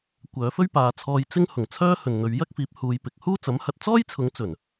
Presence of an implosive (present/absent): absent